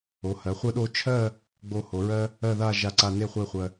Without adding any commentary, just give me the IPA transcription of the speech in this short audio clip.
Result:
o˩˧ h ɜ˩˧ χʷ ɜ˧ ɗ o˧ t͡ʃʰ ɜ˥˧ | ɡ͡b o˧ h o˩˧ ɹ ɜ˥ | ɜ˥˧ ð a˥˧ ʒ a˧ ǀ a˧ n e˥˧ χʷ e˥˧ χʷ ɜ˧

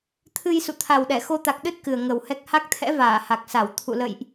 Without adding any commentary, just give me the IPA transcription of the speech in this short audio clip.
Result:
t̪ʰ ɨ˧ j s ṵ˧˨ t̪ʰ a˨˩ w ɗ ɛ˧˩ x o˧ t̪ a˨˩ k̚ ɗ ɨ˦˥ t̚ k ɨ˨˩ ə̯ ŋ ə˨˩ w h ɛ˦˥ k̚ h a˦˥ k̚ t̪ʰ ɛ̰˧˥ v aː˧˩ h a˨˩ k̚ s a˧˩ w t̪ʰ ṵ˧˨ l ə̰˧˨ j ʔ

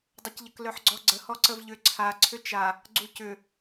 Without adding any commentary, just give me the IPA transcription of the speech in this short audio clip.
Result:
dˤ ɘ c ʎ ə k l œ ħ ɡ͡ǀ ɔ ɡ͡ǀ ə h ɔ ǀ ə v ʎ ʏ ǀʰ a ǀʰ ʏ t͡ʃ a | ɡ͡ǀ u c ʏ

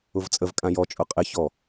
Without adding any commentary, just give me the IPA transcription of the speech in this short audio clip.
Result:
ʊ v t͡sʼ ə v kʼ ã j ɔ t͡ʃʼ ʊ qʼ ɪ ç ɔ

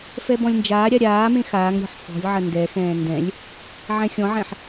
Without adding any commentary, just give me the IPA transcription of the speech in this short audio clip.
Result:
f ɛ b ɔ̃ lʲ n d͡ʒ aː ɾʲ a ɾʲ aː m ẽ x aː ŋ ɾʲ ɔ̤ ħ f ɔ̤ lʲ ʕ ɐ n d ɛ x ɛ̃ː n d ɛ̃ lʲ | ʕ ɛ̃ xʲ ɔ̃ ʕ ɛ̃ ħ

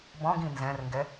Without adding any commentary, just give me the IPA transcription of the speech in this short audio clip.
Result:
b ɔ̃ ɡ ĩ n z ɛ̃ r ŋ ɡ ɛ

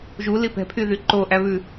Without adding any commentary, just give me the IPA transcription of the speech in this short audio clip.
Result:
ʒ u l i p ɛ̤ pʰ y ð y ǃ o ʔ æ β ʉ

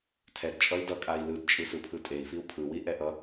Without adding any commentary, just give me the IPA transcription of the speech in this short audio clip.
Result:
tʰ ɛ d t͡ʃʼ ʌ i̯ d ʌ kʼ a i̯ l ɯ d t͡ʃʼ ɯ s ɯ pʰ ɯ tʼ e i̯ f i u̯ pʰ ɯ w i ʔ ɛ ʔ ʌ

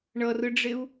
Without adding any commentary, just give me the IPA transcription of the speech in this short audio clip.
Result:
ɳ ʌ r ɯ ɖ͡ʐ e u̯

